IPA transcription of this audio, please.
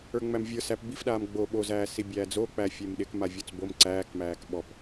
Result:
ə˞ ŋ͡m æ m vʲ ə˞ s æ p b i f ɗ aː m ɡ͡b o ɓ o z æː s i bʲ æː d͡z o k͡p æ fʲ e m ɗ ɪ k m a vʲ ɔ t͡s b o m ǀ æː k m æː k ɓ ɔ p

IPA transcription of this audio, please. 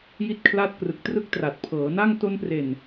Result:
j i˥˩ t̚ kʰ l aː˥˩ t̚ k r ɯ˨˩ k̚ t r ɯ˦˥ k̚ t r a˨˩ t̚ pʰ ɤː˩˦ n a˥˩ ŋ t o˧ n p r e˨˩ n

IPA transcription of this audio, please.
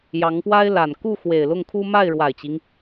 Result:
j ɑ˧˥ ŋ p w a˥ ɪ̯ l a˨˩ n k u˥˩ x w e˨˩ ɪ̯ l ʊ˥˩ ŋ kʰ u˥ m a˥˩ ɪ̯ ɻ w a˨˩ ɪ̯ t͡ɕ i˦ ŋ

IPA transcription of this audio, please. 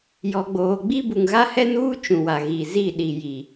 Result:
j ɔ˨ ɡ͡b oː˨ ɡ͡b i˦ b u˨ ŋ ɣ a˦ h ɛ˦ n uː˦ t͡ʃ ũ˨ w a˨ ɣ i˨ z i˦˨ ɗ i˨ j i˨

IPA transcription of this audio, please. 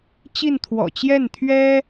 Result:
t͡ɕ i˥˩ n t̪ʰ w ɔ̰˨˩ t͡ɕ j ɛ˥˩ n t̪ʰ ɥ ɛ˥

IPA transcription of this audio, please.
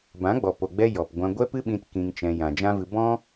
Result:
b ã˨˦ ɡ͡b ɔ˨ p o˨ ɡ͡b ɛ˧ j ɔ˨ p ɡʷ ã˧ ɡʷ ɛ˦ p ɨ˦ ɓ ĩ˦ t k ĩ˧ ŋ t͡ʃ ɛ̃˧ j ã˨ d͡ʒ ã˦ v ɨ˧ b ɔ̃˦

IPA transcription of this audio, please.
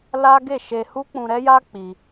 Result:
l a˦ ɡ e˦˨ ʃ e˧ h u˦ k͡p ũ˧ ɾ ɛ˦ j a˦ k͡p i˧

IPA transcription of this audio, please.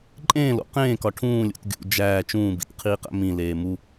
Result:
ǃʼ ẽː l o̰ q ẽː k ɒ ʈʰ ũː lʲ ṵ t ɡʲ ṵ d͡ʒ æː t͡ʃ ũː b ḭ t qʰ iː q æ̰ m ĩ l eː m u

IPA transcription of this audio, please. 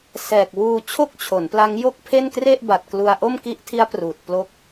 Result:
s ɛː˨˩ k̚ w uː˧ t͡ɕʰ o˥˩ k̚ t͡ɕʰ o˩˦ n p l a˦˥ ŋ j o˥˩ k̚ pʰ e˥˩ n k r e˥˩ ʔ b a˨˩ t̚ k l u˧ a̯ ʔ o˥˩ m k i˦˥ ʔ tʰ i˦˥ a̯ p r uː˨˩ t̚ p l o˦˥ k̚

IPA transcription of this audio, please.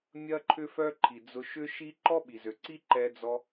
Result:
mʲ ɐ˦ ǃʰ ʏ˦ f œ˦ ǃʰ i˨ d͡z ʊ˧ ʃ ʏ˦ ʃ i˦ ǃ ɔ˦ ɓ i˨ z ø˨ ǀ i˦ ǃ ɛ˧ d͡z ɔ˧

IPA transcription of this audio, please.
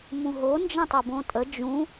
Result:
m ũ ɦ o n d͡ʒ ə̃ tˤ ɤ b õ tʼ ə d͡ʒ ũ

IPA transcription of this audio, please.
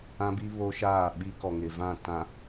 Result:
ã˦ b i˦ β o˦ ʃ aː˦˨ ɓ i˦ k ɔ˨ ŋ ɪ˨ v ã˦˨ t ã˨

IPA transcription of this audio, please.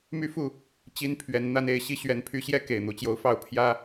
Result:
m y˦ f u˥˨ | t͡ɕ i˦ n pʰ ɥ ɛ˨˦ n n̪ a˦ n e˥˨ ɪ̯ ɕ i˦ ɕ ɥ ɛ˨˦ n pʰ y˨˦ ɕ j ɛ˦ k e˨˩ ɪ̯ n̪ u˨˦ t͡ɕ j o˨˦ ʊ̯ f ɑ˥˨ ʊ̯ pʰ j ä˦

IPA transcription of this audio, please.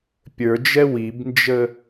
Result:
pʲ ə˞ d͡ʒ ɛ w i b n d͡ʒ ə

